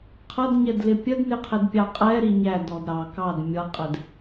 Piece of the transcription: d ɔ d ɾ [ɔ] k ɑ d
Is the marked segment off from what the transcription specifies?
yes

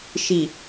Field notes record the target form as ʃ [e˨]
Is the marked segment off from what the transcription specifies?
yes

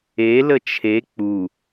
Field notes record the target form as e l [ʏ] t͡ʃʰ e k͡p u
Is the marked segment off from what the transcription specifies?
yes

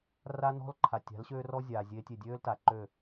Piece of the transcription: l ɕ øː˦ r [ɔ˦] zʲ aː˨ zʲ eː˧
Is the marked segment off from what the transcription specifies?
no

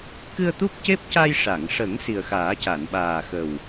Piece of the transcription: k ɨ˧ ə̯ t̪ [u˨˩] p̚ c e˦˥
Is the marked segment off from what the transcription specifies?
yes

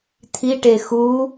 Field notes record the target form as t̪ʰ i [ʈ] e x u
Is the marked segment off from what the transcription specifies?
no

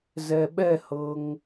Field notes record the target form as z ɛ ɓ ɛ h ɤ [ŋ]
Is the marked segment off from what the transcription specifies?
no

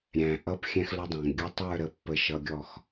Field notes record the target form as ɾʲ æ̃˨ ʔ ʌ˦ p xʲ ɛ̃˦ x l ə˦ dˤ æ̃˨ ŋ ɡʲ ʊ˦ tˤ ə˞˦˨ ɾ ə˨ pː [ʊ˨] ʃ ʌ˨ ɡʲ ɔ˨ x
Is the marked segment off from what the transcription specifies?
yes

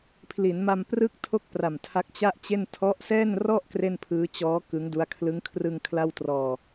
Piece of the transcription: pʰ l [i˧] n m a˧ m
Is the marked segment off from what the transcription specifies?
yes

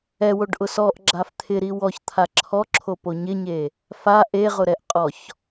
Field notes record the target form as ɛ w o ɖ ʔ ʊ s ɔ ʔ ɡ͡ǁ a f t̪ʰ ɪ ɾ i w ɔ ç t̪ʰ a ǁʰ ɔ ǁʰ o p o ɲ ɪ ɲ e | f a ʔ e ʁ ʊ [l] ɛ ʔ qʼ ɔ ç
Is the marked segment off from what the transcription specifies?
yes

